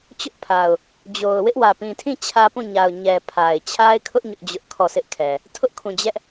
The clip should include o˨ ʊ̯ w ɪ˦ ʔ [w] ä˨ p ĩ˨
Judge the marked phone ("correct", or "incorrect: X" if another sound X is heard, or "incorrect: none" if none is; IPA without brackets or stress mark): correct